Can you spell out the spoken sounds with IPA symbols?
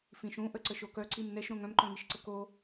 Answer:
f ĩ ʃ ũ ʔ ə ǀ ə ʃ o k œ ǀ i m n ɛ ʃ ɾ õ ŋ œ̃ m ǃ œ̃ ŋ i ʃ ǀ ə k o

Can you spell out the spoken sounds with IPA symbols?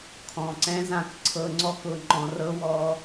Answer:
kʰ ɔ̃˨ ǀ ɛ̃˦ z ã˦˨ k ǀʰ ɤ˧ ŋ͡ǀ ɔ˦ k ʊ˧ ŋ͡ǃ ɔ̃˧ r ɤ˦ w ɔ˦

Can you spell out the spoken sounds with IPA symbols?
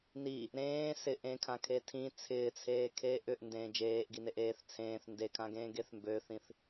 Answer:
n i | ɾ ẽː s ɪ ʔ ẽ kʰ ã kʰ e tʰ ĩ t͡sʰ ɪː t͡sʰ eː kʰ eː ʔ ʏ ʔ n d ẽː d͡ʒ eː ʔ ɡ i n e ʔ eː θ t͡sʰ ẽː θ n d e kʰ ã ɡ ẽː ɡ e θ m b ø θ ĩ θ

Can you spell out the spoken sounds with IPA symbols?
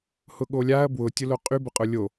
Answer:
h ʊ ɠ o lʲ a ɐ̯ b w ʊ tʲ ʊ l o qʼ y b ʊ qʼ ʊ lʲ o

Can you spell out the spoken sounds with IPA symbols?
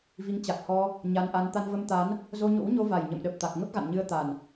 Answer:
v i˨˦ ŋ t͡ɕ a˨˩ k̚ h ɔ˧ | ɲ a˧ n ʔ a˧ n t̪ a˧ n v ə˧ m t̪ a˨˦ n | z o˧ ɲ o̰˧˥ w ɲ o˧ v a˨˩ j ɲ ə̰˧˨ m ɗ ə˨˩ p̚ t̪ a˨˩ k̚ ŋ ə˦˥ p̚ ɣ a̰˧˨ n ɲ ɨ˧ ə̯ t̪ a˨˩ n

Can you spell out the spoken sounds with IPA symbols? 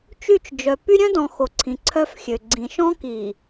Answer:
t͡ʃ y˦˨ t͡ʃ d͡ʒ œ˨ p y˦ ɾʲ œ̃˦ d ɔ̃˨ x o˨ ǀʰ ĩ˨ ǀʰ œ˦ f xʲ ø˨ ɡ͡ǀ ĩ˨ ʃ ɔ̃˦ k i˨

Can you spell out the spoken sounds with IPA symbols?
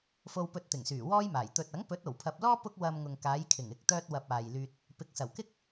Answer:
f o˧ w p ɵ˧ t̚ t̪ ɪ˨˩ ŋ s yː˨˩ w ɔː˥ j m aː˨˩ j t̪ ɵ˨ t̚ ɐ˨˥ ŋ p ɵ˨˥ t̚ o˨˩ w pʰ ɐ˨ p̚ l ɔː˥ p ʊ˥ k̚ w ɐ˧ m ŋ ʊ˨ ŋ k aː˨˧ j kʰ ɪ˨˩ ŋ ɪ˨ k̚ t̪ œː˥ t̚ w ɐ˧ p̚ aː˨ j l yː˧ t̚ | p ɪ˨ k̚ s ɐ˨˩ w k ɪ˥ k̚

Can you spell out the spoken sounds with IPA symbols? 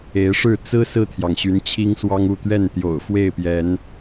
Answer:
e˨˦ ɪ̯ ʂ ɻ̩˥˨ t͡s ɹ̩˦ s ɹ̩˥˨ t̪ʰ j ɑ˩ ŋ ɕ y˨˦ n t͡ɕʰ i˦ ŋ s w ɑ˦ ŋ u˥˨ t̪ ɥ ɛ˥˨ n t̪ j o̰˨˩ ʊ̯ f w e˥˨ ɪ̯ p j ɛ˨˦ n

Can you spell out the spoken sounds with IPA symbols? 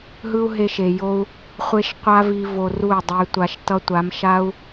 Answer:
ɦ ɯ˦ u̯ ɦ e˧ ʃ e˨ j o˧ u̯ | χʷ e˦ ʃ qʷ a˦ v i˧ v o˧ r u˦˨ y̯ dˤ ɛ˧ y̯ tʷ a˧ ʃ t ʌ˦ tʷ a˨˦ m ʃ a˦ u̯

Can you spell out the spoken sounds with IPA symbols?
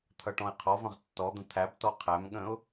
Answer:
t̪ʰ ʌ ʈ ɔ̃ ɪ̯ qʰ ɔ v ə̃ ʁ tː ɔ d̪ ə̃ t̪ʰ æ b t ɔ qʰ æ m ɠ ə̃ ʊ̯

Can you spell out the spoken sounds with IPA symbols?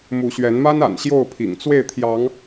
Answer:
m u˨˦ ɕ ɥ ɛ˨˦ n m a˦ n a̰˨˩ n ɕ j o˥˨ ʊ̯ pʰ ḭ˨˩ ŋ t͡s w e˥˨ ɪ̯ t̪ʰ j ɑ˨˦ ŋ

